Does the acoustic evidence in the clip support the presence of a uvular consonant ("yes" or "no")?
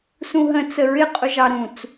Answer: yes